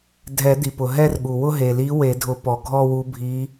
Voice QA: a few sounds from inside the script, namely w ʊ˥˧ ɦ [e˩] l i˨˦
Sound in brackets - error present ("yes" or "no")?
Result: no